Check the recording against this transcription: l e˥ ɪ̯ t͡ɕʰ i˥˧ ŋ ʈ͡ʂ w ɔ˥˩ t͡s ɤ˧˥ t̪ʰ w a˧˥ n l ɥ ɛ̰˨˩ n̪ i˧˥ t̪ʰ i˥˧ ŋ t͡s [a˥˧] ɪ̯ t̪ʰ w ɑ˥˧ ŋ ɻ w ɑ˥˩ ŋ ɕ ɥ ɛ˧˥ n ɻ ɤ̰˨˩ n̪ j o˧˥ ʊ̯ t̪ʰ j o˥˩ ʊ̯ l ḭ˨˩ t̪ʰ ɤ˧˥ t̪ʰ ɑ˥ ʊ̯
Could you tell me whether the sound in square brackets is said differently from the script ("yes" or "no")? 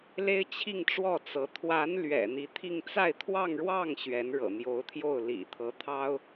no